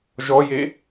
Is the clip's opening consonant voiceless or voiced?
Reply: voiced